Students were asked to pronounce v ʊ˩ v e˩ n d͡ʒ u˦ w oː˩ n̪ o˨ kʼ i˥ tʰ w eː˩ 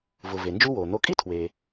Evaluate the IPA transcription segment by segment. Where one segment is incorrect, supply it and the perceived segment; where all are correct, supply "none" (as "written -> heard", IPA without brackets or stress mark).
none